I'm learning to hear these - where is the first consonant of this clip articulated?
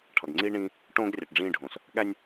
retroflex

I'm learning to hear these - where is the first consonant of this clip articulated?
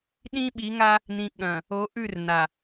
tongue tip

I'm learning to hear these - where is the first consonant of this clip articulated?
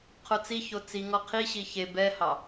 uvula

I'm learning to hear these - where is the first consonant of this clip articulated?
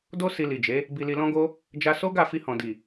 tongue tip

